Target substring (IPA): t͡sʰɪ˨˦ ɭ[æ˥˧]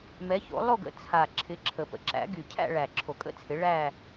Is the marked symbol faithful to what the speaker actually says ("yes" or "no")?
yes